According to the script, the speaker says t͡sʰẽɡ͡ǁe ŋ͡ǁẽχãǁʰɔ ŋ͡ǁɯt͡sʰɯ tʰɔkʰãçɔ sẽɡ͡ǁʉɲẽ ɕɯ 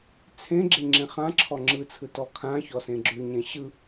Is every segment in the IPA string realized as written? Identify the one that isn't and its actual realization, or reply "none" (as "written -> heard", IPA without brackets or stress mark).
tʰ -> t